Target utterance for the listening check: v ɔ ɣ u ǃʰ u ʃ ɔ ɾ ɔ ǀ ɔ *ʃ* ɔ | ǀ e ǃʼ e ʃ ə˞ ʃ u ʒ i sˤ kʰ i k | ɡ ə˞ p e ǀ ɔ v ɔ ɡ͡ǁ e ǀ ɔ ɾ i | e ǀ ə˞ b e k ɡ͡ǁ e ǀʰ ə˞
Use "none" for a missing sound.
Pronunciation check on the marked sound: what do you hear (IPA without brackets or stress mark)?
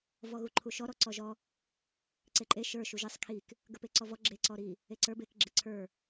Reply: ʒ